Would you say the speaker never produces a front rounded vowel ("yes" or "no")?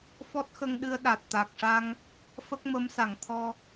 yes